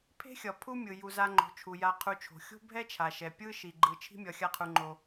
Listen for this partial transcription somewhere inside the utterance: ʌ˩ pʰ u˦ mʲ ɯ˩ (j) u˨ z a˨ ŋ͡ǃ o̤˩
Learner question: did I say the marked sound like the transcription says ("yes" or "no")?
yes